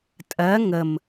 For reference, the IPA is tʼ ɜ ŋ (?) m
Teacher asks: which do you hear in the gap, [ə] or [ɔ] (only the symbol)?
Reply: ə